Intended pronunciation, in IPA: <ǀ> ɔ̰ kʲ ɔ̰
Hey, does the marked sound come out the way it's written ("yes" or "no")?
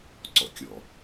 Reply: yes